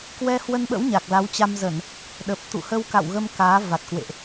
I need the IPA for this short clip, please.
k w ɛ˧ h w ə˧ n ɓ ə̰˧˥ w ɲ a˨˩ k̚ l a˨˦ w t͡ɕ a˧ m z ə˧˩˨ n | ɗ ə˨˩ p̚ t̪ ṵ˧˨ h ə˧ w k a̰˧˨ w ɣ ə˧ m k aː˨˦ v a˨˩ t̚ k w ḛ˧˨ ʔ

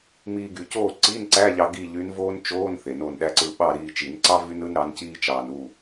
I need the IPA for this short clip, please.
m iː˧ ɡ y˨˩˦ c oː˥˨ ǀ iː˧˥˧ n ǀ æ˧˥˧ ʎ ɑ˧ ɡ i˥˨ ʎ y˧˥ n v oː˥ n t͡ʃ oː˧˥˧ n θ e˨˩˦ n oː˧ n ɗ æ˥ ǀ ɯː˧ ɓ ɑ˥˨ ɾ iː˧ t͡ʃ i˨˩˦ n ǀ ɑ˥ v y˥ n ɯ˥ n ɾ ɑ˧˥ n c iː˥ t͡ʃ ɑː˧ n u˥˨

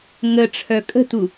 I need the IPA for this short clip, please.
ŋ ə ʈ͡ʂʰ œ kʼ ə̤ t u

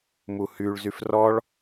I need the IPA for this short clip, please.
m u h y ɭ z y f r ɔ ɭ

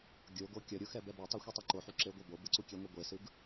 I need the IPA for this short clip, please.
ɡʲ o ɡ o kʲ ʌ ɾʲ u x ɛ b ɛ b u tˤ i xʷ i tˤ i ǃ o ħ u ǁ e ɡʷ a b o b ɯ ǀ u kʲ ɛ ŋʷ i ɡʷ e s ɯ ɡ

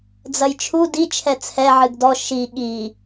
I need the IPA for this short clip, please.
d͡z ɐ j t͡ʃʰ u d i t͡ʃʰ ɛ t͡sʰ ɛ ʕ ɨ ɡ d ɔ ʃ i ɠ i

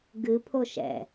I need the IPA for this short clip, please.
ɡ ɨ pʰ o ʃ ɛ̰

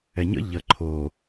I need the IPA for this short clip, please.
ɛ ɲ ə̰ ʎ ə ǃʰ o

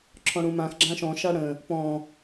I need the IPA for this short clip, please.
ǁʰ ɔ̃ ɽ ũ m ã x ɡ͡ǁ ã ʃ ɔ̃ ʃ a ɽ ə̃ | p ɔ̃

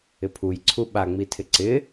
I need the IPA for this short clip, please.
ɪ pʰ u j ǀʰ u ɓ a ŋ͡m i tʰ ɪ ǀ ɪ

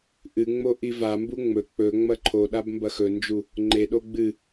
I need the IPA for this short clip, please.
ʔ ɨ ŋ͡m o ʔ i v a m b u ŋ͡m ɵ k͡p ɵ ŋ͡m ɐ ǃʰ o ɗ a b m b ɐ x ɵ n d͡ʒ u | ŋ͡ǃ e ɗ o ɡ͡b ɨ

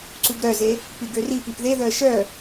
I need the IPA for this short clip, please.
ǀ u ɡ ɾ œ z e | p i ɡ ø r i p i p ð e ð œ ə̯ ʃ œ

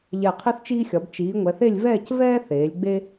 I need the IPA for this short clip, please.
ʎ ɛ˧˩ qʰ i˥ θ t͡ʃ iː˥ xʲ ɒ˩˧ b t͡ʃ iː˩˧ ŋʷ ɛ˩˧ θ e˥˧ lʲ v ɛː˥˧ c v ɛː˥ θ eː˩˧ lʲ ɡ͡b e˥

